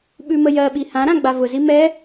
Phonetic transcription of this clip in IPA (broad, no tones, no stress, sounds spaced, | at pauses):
ɓ ʉ m ə j ɜ ɓ i h ã ɾ ã ɡ͡b a v ʊ z i m ɛ